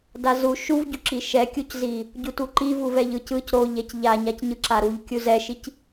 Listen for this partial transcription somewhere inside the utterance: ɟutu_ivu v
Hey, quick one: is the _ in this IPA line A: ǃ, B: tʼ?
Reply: A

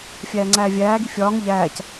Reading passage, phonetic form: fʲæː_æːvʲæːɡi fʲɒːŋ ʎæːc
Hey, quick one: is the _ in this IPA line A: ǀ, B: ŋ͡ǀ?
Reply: B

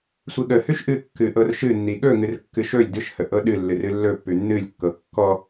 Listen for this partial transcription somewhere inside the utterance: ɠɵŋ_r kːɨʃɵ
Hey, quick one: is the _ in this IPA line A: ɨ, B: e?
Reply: A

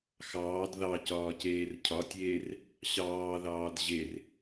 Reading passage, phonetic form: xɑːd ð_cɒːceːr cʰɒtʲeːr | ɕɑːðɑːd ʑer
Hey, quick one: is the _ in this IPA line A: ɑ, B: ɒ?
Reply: A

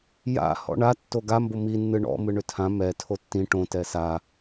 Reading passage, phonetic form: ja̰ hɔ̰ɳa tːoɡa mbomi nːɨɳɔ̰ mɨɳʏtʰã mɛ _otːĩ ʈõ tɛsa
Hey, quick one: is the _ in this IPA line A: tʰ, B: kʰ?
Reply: A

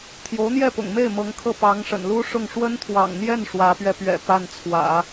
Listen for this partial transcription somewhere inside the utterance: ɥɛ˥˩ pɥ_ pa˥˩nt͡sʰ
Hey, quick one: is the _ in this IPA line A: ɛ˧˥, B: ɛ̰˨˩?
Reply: B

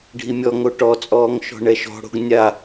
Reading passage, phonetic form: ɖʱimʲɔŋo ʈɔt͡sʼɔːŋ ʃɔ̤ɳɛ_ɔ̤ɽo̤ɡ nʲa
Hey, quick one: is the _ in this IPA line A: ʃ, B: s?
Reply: A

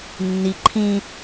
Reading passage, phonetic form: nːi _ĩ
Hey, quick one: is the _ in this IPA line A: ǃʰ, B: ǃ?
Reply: A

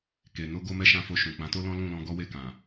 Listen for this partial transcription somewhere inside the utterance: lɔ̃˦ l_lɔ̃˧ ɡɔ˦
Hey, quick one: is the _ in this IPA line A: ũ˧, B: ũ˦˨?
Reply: B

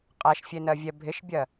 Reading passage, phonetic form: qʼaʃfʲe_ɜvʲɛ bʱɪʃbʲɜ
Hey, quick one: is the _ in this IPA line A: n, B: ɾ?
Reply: A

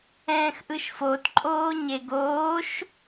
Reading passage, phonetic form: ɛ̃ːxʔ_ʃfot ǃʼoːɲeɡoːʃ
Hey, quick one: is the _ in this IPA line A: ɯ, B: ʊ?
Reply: A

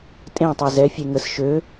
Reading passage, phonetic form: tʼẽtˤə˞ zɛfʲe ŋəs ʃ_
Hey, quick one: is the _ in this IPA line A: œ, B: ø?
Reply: B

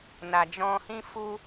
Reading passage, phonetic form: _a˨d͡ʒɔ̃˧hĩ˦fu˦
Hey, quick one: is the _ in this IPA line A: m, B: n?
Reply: B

